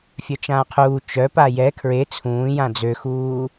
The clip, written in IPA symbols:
fʲœt͡ʃãːqʰuː t͡ʃœ pajɛ kʰɹe t͡sʰũːjã d͡zøxuː

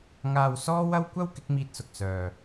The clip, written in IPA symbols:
ŋaː˧w sɔː˥wɐ˥w kʷɐ˥w kɪ˨˥k̚miː˧t̚sʊ˨k̚ sœː˨

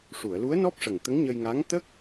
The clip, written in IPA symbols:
ʂu˨˩˨ə̯lu˧˥ə̯nɔ˦˥p̚ʂə˨˩ŋ t̪ə˧˥ŋɲə˧jŋaː˧˥ŋ t̪ə˦˥k̚

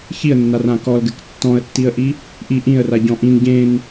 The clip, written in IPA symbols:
çiə̯nːarã kɔlɡɘk tːɔ̃ə̯tːiə̯ʔi | ʔi ʔĩə̯raɟɔ̃ ʔĩn ɟẽn

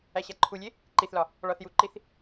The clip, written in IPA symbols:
æɕæǃʰulʲe | ǃiθlɒ | ɭɒθjuǃiθ

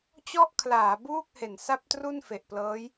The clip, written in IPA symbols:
t͡ɕɔ˥˩ʔkʰlaː˩˦ buː˥˩k̚he˨˩n sa˥˩p̚tru˥˩n fe˨˩ʔplɤː˦˥j

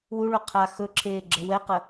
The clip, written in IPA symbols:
wuɭo qʰa xɵǁʰeːɡ͡ǁə wɛqə

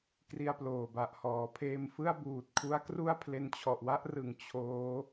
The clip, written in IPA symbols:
kri˧a̯ploː˨˩ba˨˩ʔ hɔː˩˦pʰeː˧mfɯ˥˩a̯buː˨˩t̚ kʰu˦˥a̯kru˥˩a̯ pʰle˧nt͡ɕʰɔ˨˩ʔwa˥˩ʔrɯ˨˩ŋ t͡ɕʰoː˦˥

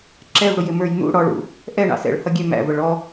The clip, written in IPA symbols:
ǁɛvɽʊjɪmə˞j nṵ ɽɔɭṵ | ʔɛɳɑ̰ sɛ̰ɭhʌɡʲɛ mæ̰və ɭɔ

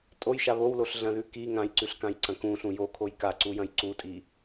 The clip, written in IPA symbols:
tʼojʃa βowloɬɮɐ̃ðʉ ki ŋãjǀʉɬkãjǀɐ̃ kũɬũ jokʰoj kaǀujɐ̃j ǀutʼi

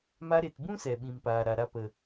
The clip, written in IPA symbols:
ma˧ɾe˨tbũ˦ sɛ˨ɓĩ˨mpaː˨ ɾa˨ɾa˧pə˨

